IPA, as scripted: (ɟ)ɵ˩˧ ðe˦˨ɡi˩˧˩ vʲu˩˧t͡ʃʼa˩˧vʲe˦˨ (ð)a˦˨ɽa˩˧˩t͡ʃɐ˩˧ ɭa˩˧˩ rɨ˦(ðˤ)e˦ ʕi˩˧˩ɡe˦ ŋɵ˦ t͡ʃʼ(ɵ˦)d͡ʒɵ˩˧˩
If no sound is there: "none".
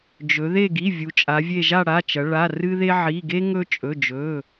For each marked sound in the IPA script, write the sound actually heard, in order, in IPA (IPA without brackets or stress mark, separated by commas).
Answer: d͡ʒ, ʒ, ð, ɵ˩˧˩